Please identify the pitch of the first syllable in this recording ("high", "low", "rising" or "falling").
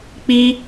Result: high